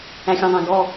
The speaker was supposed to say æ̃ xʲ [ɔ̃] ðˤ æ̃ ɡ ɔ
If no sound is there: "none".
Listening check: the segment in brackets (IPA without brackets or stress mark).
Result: ɔ̃